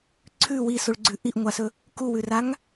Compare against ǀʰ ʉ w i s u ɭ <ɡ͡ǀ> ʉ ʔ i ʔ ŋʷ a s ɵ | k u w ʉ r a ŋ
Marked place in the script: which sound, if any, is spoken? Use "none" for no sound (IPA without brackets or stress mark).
ɡ͡ǀ